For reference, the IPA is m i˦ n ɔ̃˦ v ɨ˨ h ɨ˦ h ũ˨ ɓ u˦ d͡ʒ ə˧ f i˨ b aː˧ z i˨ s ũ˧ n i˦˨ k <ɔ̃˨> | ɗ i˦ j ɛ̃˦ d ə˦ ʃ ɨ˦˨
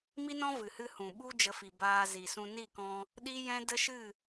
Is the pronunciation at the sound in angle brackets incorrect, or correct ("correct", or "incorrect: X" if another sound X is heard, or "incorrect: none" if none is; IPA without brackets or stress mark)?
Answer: incorrect: ɔ̃˧